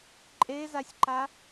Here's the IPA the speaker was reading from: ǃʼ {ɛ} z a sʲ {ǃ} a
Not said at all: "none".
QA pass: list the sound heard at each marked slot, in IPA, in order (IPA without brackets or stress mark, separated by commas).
e, ǃ